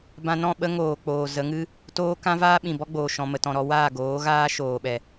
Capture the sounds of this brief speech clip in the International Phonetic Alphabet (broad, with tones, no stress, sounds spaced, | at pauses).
b ã˧ n ɔ̃˦˨ ɓ ə˦ ŋ oː˨ k͡p oː˨ z ə˨˦ ŋ ɨ˦ | t oː˦ k ã˦ v aː˦ ɓ ĩ˨ b ɔ˦ ɡ͡b oː˨ ʃ ɔ̃˨ m ə˨ t ɔ̃˨ ɾ ɔ˧ w aː˦˨ ɡ oː˨˦ ɣ aː˦ ʃ oː˨ ɓ ɛ˨